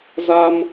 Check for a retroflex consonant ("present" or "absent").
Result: absent